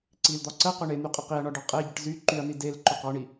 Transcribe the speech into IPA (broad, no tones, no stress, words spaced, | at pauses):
ǀild̪ɒ ǀə qʏɳen̪y qʼəqiɐ̯ɳɒ ɖɒqʼeɟəʈ zy ǃyɐ̯ni del ǃʏqɒɳi